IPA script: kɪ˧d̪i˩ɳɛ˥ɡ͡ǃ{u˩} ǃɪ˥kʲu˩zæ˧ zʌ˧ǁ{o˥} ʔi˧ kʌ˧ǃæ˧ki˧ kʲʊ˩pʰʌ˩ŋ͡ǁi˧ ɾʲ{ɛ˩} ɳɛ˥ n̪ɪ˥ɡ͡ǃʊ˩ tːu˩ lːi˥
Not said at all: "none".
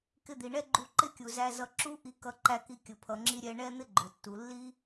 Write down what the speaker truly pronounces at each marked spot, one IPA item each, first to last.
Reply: u˧, u˥, ɛ˧

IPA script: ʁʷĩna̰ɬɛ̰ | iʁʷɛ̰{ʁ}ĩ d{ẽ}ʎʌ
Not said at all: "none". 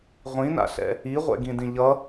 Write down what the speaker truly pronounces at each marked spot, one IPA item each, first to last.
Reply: ɡ, ĩ

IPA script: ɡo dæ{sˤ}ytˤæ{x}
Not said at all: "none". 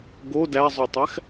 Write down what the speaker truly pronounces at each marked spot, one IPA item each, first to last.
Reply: zˤ, x

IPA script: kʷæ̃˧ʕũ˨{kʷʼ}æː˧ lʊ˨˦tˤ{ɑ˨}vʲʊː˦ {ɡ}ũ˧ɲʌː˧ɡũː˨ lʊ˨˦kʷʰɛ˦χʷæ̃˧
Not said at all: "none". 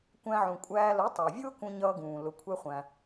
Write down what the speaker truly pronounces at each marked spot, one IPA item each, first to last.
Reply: kʷʼ, ɑ˨, k

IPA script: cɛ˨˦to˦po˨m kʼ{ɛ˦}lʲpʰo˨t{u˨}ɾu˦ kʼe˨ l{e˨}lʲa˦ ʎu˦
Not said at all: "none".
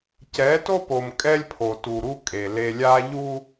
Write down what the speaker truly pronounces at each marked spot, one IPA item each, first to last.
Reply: ɛ˦, u˨, e˨

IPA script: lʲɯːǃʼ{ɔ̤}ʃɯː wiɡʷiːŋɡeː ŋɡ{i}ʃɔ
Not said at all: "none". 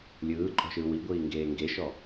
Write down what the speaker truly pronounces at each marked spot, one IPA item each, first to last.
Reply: ɔ̤, e

